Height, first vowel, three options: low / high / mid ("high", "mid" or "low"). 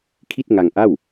high